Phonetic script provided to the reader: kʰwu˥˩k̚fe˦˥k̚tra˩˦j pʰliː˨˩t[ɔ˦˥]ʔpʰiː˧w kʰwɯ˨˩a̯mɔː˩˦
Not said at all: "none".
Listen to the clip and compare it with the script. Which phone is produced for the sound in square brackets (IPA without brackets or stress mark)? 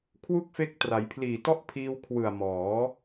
ɔ˦˥